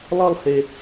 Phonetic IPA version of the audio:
lˠ ʌ˦˨ lˠ h e˨

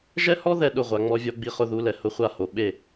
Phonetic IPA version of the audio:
ʒ ɛ˦ h ɔ˦ ð ɛ˦˨ ɗ ʊ˦˨ ʁʷ a˨ ŋ͡m ɔ˦ vʲ ɔ˦ ɡ͡b i˦ χ ʊ˦ ð u˨˦ l ɛ˨ h ʊ˦ χʷ a˦ h o˨ ɓ e˦˨

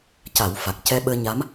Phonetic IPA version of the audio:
c a˨˩˦ w f a˨˩ k̚ c ɛ˧ ɓ əː˧ ɲ a˧˥ m

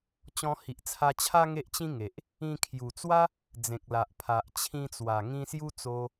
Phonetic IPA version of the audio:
t͡ɕ ɔ̃˧ h i˨ ʔ t͡sʰ a˧ t͡ɕʰ a˦ ŋ e˦ ʔ t͡ɕ ĩ˦ ŋ e˨ ʔ | ĩ˧ kʰ j u˨˩ t͡s w a˦ | d͡z ẽ˨ k̚ l a˨ ʔ pʰ a˨ ʔ t͡ɕʰ ĩ˧ t͡s w a˨˩ ŋ ĩ˧ s j u˦ t͡s o˧

